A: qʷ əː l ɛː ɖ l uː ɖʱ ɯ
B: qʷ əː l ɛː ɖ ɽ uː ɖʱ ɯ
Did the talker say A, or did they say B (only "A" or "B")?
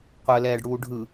B